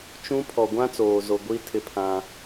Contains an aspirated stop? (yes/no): yes